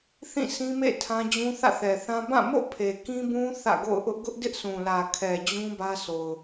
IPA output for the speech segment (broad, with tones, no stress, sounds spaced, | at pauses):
θ ĩ˦˨ s ĩ˦ m ḛ˦˨ tʰ ã˦ d͡ʑ ũ˦ θ ä̰˦˨ θ ɛ˨ θ ã˦ b ã˦˨ m o̰˦˨ pʰ e˨ k ĩ˦ b ũ˦ θ ä̰˦˨ ɡ o̰˦˨ ʊ̯ ʔ ʊ˦ ʔ ɡ ʊ˦ ʔ d ɪ˦ ʔ s ũ˨ l ä˨ kʰ ɛ˨ d͡ʑ ũ˦ b ä˦ sʰ o˨ ʊ̯